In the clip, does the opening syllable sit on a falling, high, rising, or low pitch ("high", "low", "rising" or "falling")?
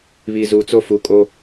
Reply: low